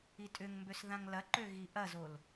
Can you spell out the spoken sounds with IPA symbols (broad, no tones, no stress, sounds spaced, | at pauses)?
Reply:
i tʼ ʏ ŋ m b ø s ð ã ŋ l ɐ ǃ ø ɣ i ʔ ɐ z o l